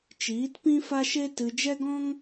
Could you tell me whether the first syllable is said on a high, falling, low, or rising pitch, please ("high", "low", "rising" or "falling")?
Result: rising